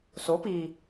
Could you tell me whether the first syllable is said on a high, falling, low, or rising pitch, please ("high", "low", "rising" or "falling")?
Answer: rising